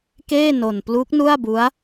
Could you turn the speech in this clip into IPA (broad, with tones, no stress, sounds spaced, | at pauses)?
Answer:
k eː˥˩ n o˧ n p l u˦˥ k̚ n u˥˩ a̯ b u˦˥ a̯